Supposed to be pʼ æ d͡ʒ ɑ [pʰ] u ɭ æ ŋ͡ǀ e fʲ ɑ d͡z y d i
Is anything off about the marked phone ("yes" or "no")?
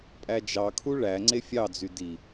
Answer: yes